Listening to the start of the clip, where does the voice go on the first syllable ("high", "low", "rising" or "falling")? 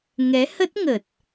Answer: rising